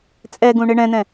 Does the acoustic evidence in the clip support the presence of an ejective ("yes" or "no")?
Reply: yes